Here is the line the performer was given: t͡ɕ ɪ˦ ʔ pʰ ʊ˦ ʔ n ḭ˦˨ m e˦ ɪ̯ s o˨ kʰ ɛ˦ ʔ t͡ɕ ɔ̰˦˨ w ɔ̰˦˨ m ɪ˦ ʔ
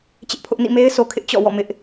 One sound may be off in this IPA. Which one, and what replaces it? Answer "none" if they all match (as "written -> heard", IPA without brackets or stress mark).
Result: ɛ˦ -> ɪ˦